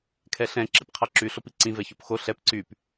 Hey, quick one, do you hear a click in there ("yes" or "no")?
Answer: yes